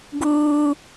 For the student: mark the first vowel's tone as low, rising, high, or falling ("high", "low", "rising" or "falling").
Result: high